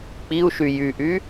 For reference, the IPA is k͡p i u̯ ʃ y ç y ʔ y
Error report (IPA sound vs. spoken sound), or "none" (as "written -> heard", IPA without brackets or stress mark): ç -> j